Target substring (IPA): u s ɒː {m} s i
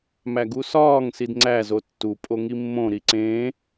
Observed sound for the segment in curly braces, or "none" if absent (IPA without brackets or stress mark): ŋ